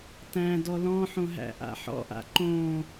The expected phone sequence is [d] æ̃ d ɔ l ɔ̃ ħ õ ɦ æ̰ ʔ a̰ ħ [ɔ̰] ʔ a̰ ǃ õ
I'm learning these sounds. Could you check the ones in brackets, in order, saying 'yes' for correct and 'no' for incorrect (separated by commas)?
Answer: no, yes